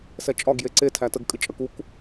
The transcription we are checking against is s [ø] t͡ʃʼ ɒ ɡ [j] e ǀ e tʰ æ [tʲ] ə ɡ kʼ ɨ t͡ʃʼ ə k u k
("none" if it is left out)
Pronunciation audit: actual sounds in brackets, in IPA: ɛ, j, t

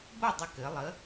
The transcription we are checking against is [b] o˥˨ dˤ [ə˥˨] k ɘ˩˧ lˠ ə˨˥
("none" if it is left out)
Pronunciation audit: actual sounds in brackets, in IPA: b, ə˨˥

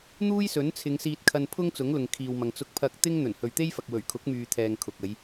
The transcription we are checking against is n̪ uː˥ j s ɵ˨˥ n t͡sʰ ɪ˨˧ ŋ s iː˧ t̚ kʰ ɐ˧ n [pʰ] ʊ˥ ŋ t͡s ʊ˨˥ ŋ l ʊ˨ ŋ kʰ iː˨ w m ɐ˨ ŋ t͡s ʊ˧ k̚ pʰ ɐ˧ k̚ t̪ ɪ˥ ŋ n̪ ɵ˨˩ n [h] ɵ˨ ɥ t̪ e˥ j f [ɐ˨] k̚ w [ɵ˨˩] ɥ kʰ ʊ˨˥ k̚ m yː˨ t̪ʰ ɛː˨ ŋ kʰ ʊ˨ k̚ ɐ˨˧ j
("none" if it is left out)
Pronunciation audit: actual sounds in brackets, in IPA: pʰ, h, ɐ˨, ɵ˨˩

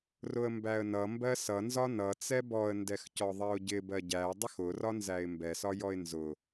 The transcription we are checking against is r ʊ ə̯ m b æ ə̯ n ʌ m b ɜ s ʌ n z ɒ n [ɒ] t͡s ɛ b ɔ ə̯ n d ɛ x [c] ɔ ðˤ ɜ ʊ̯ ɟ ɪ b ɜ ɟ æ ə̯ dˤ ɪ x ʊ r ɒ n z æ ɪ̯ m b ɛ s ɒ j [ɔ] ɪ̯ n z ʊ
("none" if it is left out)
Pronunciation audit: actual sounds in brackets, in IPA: ʌ, c, ɔ

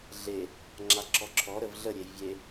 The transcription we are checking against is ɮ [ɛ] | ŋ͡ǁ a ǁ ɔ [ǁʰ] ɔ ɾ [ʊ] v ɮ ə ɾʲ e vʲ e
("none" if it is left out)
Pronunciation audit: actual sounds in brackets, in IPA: e, ǁʰ, ə

